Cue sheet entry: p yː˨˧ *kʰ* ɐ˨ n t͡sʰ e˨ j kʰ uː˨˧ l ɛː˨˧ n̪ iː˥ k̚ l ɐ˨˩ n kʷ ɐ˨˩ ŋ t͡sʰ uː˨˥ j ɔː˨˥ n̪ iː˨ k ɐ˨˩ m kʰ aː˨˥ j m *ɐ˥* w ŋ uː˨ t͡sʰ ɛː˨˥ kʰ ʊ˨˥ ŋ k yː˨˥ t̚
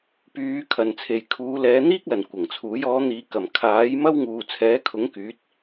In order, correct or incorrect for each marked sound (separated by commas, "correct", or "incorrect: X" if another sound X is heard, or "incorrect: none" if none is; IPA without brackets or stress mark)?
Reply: correct, correct